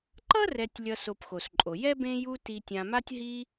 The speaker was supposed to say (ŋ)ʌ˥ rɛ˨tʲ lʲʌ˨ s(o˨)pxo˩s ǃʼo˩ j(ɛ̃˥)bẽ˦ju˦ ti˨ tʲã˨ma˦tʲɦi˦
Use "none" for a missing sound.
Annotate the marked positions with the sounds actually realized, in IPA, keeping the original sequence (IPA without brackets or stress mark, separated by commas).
ǃ, o˨, ɛ˥